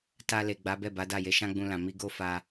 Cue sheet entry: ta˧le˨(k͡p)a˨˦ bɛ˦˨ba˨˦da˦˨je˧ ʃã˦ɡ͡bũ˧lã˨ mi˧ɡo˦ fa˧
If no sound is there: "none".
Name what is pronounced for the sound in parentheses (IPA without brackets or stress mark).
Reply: ɡ͡b